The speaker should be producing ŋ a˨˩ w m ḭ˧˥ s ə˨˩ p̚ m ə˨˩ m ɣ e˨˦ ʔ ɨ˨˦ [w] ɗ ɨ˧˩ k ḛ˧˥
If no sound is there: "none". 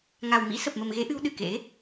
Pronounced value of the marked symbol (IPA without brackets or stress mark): w